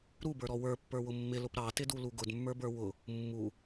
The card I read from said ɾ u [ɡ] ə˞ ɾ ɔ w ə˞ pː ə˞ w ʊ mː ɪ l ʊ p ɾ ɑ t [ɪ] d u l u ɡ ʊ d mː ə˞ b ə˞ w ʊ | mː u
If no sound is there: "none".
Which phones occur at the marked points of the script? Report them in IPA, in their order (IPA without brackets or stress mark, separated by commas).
b, ɪ